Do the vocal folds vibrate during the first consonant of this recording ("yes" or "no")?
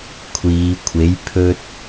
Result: no